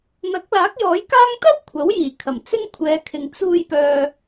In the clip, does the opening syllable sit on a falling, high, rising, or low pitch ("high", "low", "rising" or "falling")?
rising